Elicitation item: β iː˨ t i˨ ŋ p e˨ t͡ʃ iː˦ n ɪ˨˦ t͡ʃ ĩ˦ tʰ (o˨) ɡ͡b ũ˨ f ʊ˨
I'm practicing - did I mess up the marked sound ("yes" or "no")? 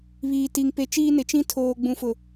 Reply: yes